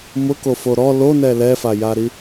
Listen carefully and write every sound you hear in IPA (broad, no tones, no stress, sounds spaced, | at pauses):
m ʊ k o f o ɾ ɔ l o n ɛ l ɛ f a j a ɾ i